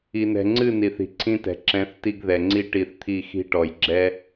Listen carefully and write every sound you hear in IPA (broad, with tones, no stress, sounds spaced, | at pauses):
i˨ n ɛ̤˨ ŋ͡ǀ ɨ˦˨ n i˨ θ i̤˨ ǀʰ ĩ˦ t ɛ̤˨ ǁ ɛ̃˨˦ θ t i˧ ɡ ð ɛ˨ ŋ͡ǀ i˦ ʈ i˧ θ t̪ʰ i˦˨ x i̤˦ ʈ ɔ˨ j ɡ͡ǁ ɛ˦